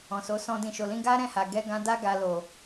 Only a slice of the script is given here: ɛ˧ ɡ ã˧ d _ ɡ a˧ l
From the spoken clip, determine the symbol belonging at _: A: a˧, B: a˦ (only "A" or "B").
B